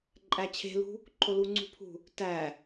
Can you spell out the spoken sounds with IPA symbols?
ǃʼæt͡ɕʰe̤lṳ | ǃʰoluŋ͡ǀṳpʰṳ | tæ

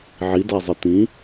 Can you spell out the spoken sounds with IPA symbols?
ʕidazˤɘ tĩ

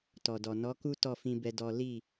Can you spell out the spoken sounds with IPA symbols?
tɔ˨dɔ˨ nɔ˨˦ku˦ tɔ˦˨fĩ˧ bɛ˦dɔ˦ li˦˨

